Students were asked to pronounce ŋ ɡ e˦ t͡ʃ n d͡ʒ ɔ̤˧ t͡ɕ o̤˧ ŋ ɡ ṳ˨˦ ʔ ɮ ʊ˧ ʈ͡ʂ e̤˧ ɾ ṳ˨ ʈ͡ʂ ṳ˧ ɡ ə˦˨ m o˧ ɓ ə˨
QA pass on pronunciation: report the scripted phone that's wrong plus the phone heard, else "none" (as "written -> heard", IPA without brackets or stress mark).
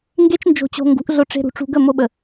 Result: ɔ̤˧ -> o̤˧